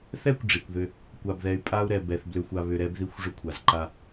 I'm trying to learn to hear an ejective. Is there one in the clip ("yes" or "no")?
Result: yes